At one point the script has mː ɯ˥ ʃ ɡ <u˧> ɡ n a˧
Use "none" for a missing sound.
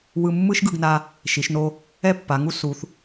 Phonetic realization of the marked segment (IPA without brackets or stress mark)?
ɯ˧